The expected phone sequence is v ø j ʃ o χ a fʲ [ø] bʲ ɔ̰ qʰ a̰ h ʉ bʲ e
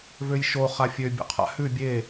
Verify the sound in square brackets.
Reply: correct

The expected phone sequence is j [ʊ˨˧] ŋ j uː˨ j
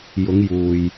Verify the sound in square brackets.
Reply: correct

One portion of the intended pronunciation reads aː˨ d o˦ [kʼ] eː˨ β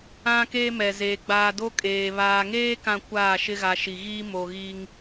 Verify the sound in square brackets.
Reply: correct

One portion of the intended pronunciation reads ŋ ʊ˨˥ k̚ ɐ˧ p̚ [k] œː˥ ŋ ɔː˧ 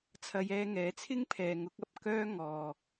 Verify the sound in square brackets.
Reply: correct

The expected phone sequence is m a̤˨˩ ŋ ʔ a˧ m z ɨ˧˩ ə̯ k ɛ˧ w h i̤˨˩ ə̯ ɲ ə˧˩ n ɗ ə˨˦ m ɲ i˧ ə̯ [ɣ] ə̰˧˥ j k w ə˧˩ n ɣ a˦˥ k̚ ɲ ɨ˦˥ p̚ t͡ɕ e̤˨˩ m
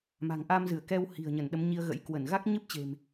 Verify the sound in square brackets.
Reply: correct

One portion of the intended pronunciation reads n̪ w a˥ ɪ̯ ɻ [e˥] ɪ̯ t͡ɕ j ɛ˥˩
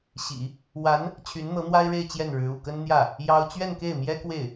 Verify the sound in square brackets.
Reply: incorrect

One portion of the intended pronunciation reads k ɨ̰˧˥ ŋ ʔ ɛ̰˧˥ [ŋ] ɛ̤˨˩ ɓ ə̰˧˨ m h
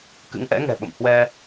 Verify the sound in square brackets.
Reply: correct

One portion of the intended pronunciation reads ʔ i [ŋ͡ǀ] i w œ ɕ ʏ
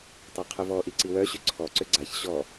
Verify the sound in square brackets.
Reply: incorrect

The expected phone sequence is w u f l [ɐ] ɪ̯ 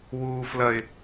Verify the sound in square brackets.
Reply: correct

